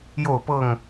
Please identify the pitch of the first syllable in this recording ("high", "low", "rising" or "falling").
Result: falling